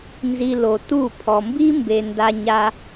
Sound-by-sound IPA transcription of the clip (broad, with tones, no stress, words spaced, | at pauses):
nzi˧lo˨ tu˦˨ pʰɔ˨mbi˦ mbe˧ nda˧ ɲa˧